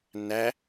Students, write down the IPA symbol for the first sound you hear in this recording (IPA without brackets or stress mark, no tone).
n